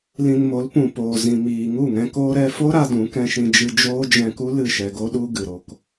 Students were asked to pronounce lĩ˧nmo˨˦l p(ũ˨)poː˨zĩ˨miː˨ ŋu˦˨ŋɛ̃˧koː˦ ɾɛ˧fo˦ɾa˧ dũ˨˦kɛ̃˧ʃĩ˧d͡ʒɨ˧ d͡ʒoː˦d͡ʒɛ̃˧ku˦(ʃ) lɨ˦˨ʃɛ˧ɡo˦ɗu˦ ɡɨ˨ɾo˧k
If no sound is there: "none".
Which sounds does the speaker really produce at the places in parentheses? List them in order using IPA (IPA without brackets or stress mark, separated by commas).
ũ˨, none